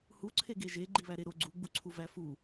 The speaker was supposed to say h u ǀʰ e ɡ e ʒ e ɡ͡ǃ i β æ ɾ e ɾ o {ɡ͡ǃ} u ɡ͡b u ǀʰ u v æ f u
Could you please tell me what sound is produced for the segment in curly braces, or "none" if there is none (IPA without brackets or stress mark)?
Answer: ɡ͡ǀ